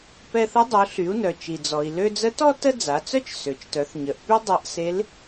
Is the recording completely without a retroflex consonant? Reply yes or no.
yes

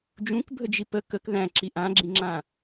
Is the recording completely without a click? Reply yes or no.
no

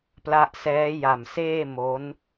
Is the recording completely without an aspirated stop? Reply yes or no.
yes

